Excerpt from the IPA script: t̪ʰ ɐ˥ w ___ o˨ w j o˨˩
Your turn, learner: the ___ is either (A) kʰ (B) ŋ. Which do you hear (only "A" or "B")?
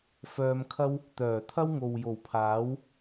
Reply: B